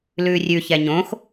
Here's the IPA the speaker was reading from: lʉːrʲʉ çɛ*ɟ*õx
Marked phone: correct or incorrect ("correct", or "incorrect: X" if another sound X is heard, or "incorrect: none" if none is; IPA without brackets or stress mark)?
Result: incorrect: ɲ